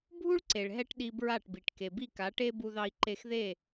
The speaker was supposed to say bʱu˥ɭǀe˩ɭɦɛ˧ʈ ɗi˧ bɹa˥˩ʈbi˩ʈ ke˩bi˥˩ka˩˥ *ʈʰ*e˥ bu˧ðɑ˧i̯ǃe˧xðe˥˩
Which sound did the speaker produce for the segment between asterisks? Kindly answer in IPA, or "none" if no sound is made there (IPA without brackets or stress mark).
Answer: ʈ